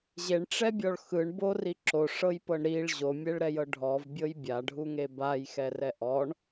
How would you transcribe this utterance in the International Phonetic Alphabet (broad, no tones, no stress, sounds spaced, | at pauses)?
ʑ e ɳ ʈ͡ʂ ɛ bʲ ɔ ɭ x ɯ ɳ b o r i ǁ o ʂ ɤ j p ɤ ɳ ɾ i ɭ ʑ o mʲ ɛ ɭ ɾ ɛ j ɤ ɖʱ ɔ v bʲ ɤ j bʲ a ɖʱ u ŋ e b a j x ɛ r ɛ ʔ ɔ ɳ